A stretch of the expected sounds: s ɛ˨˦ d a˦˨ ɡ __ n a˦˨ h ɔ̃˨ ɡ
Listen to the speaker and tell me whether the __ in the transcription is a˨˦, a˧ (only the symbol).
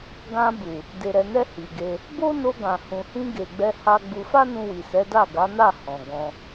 a˨˦